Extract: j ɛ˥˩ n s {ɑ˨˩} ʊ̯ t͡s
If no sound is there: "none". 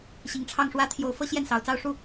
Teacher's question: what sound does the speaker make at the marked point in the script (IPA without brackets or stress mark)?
ɑ˨˩